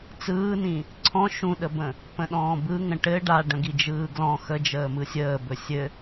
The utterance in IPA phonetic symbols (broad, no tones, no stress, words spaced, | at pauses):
t͡sɯːnĩ | ǀʰɔ̃ ʃũɗəbə̃ | pə̃ɗɔ̃ːbɯ ŋə̃ʈɘ ɖa ɖə̃ɡid͡ʒɯːɡlɔ̃ xə d͡ʒəːmɯsʲəːbɵ sʲɘ